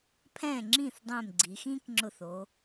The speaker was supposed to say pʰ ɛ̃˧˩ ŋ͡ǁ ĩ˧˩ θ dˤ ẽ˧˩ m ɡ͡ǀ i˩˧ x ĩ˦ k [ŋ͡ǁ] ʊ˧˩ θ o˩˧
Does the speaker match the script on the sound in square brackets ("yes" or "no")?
yes